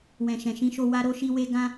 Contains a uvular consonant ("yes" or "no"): no